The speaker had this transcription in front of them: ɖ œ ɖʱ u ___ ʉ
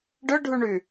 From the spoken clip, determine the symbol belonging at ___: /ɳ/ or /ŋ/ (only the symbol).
ɳ